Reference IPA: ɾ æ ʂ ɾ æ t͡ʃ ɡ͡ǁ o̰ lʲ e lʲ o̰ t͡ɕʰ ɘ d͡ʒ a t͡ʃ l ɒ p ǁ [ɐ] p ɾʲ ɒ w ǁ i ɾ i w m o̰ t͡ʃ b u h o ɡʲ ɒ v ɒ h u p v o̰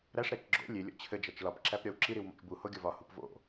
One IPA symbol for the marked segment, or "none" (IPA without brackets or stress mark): æ